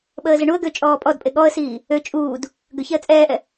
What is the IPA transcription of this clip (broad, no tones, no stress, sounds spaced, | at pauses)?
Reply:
ɓ əː z ə ɳ u ə̯ ɡ ø t͡ʃʼ ɔː pʼ ɔ d pʼ e ɠ ɔ ə̯ s iː | ø t͡ʃʼ uː d | ɡ ø ç ɛ ə̯ t͡sʼ ɛː ʔ ɛ